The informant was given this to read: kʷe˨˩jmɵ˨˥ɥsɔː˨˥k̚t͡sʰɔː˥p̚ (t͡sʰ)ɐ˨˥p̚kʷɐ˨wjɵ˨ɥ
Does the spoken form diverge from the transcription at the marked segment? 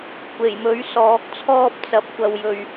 yes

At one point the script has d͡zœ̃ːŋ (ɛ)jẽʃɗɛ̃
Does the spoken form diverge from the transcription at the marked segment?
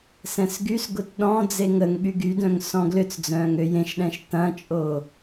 yes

